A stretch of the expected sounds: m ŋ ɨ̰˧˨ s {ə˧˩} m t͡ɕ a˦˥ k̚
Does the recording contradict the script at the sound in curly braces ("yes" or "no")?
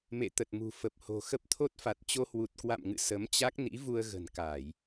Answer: yes